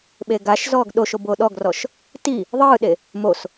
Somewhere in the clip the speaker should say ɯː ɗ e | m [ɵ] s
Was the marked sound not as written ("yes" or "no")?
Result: yes